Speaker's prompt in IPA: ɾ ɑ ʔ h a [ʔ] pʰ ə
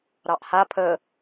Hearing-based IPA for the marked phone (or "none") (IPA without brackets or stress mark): none